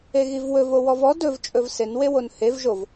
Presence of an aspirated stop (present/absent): absent